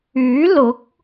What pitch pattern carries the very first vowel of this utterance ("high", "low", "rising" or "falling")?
rising